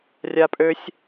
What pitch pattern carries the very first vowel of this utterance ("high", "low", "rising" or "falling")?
high